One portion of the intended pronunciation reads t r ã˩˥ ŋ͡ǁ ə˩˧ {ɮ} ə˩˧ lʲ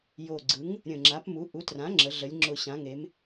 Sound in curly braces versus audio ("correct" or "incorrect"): correct